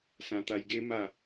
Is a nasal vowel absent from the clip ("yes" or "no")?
no